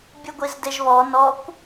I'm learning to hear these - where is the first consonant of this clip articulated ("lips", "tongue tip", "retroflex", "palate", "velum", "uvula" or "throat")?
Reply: lips